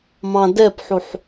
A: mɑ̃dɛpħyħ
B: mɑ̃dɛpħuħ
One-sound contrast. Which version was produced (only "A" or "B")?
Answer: B